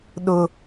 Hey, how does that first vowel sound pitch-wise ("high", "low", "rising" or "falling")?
high